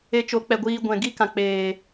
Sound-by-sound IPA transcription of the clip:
e˧ t͡ʃ o˨˦ k͡p ɛ˨ ɡʷ iː˧ ɡʷ ɛ̃˨ ɡ i˦ k ã˨ k͡p eː˨

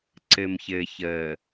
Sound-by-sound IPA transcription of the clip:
ǀ ɘ˨ m ç ɘː˨ ç əː˨

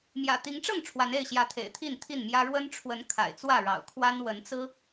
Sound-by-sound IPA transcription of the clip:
m j ä̰˨˩ t̪ i˨˦ ŋ ʈ͡ʂ ɤ˥˨ ŋ ʈ͡ʂʰ w a˨˦ n e˥˨ ɪ̯ ɕ j ä˨˦ t̪ʰ ḛ˨˩ ɪ̯ t̪ʰ i˥˨ n t̪ʰ i˥˨ n m j ä˦ ɻ w ə˦ n ʈ͡ʂʰ w ə˨˦ n kʰ a̰˨˩ ɪ̯ t͡s w ä˥˨ ɻ ɑ̰˨˩ ʊ̯ kʰ w a˦ n w ə˨˦ n t͡s ɹ̩˦

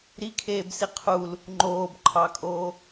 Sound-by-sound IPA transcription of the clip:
ɾ i kʰ eː b s i qʰ u l | ŋ͡ǃ oː b ǃʰ ɑ kʼ oː

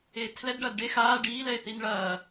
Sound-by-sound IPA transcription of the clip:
eː tʰ l ɛ d ɖ ɐː d ɖ e x aː ɖ iː l ɛ e̯ θ i n ɭ ɐː

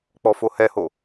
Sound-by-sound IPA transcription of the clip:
k͡p ɔ f o h ɛ h o

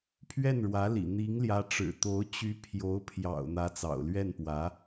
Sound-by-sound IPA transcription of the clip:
pʰ ɥ ɛ˥˩ n ɻ w ä˧˥ l ḭ˨˩ n̪ i˧˥ ŋ l j ä˧˥ ʈ͡ʂ ɻ̩˨˩ t̪ o˧˥ ʊ̯ t͡ɕ y˧˥ pʰ j o˧˥ ʊ̯ pʰ j ɑ̰˨˩ ʊ̯ n̪ ä˧˥ t͡s ɑ̰˨˩ ʊ̯ l ɥ ɛ˥˩ n p w ä˧˥

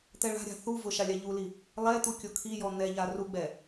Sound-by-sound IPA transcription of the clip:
t̪ ɛ ɭ a̤ ɾʲ a̤ θ u v ʊ ʃ a lʲ a ʎ u l i | lˠ ɛ t̪ u kʲ o kʰ i j ɔ n̪ ɛ ʎ a r u ɡ͡b ɛ

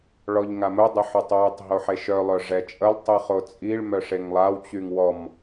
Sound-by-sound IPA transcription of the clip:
ɭ ɔ ʎ ŋ a m ʊ dˤ ə ħ ʊ tˤ w ɛ tˤ ɦ o ħ e ʃ œ lˠ œ ʐ ɛ t͡ʃʼ ə lˠ tˤ i χ o t͡sʼ i ɭ m œ ʂ e ŋ lˠ a w t͡ɕ y ŋ w ɔ m

